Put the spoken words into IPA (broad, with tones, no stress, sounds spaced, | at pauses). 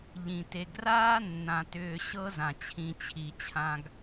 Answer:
ʎ ĩ˨ t e˨ ɡ r aː˦ nː ã˨ t ʏː˨ ɕ ɤ˦ z ã˨ t͡ɕʰ ĩ˨ t͡ɕʰ i˨ t͡ɕʰ ã˨ ɡ